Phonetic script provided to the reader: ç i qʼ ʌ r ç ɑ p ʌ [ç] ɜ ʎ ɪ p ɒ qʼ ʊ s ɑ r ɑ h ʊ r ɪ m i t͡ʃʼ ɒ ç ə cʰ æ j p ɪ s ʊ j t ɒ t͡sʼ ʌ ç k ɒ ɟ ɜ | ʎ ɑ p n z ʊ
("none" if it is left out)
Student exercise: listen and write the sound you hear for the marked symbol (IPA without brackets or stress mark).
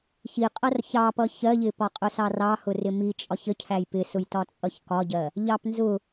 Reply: ç